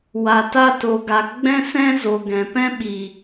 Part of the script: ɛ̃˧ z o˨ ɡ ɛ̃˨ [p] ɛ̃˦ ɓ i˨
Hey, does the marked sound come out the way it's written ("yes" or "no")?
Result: yes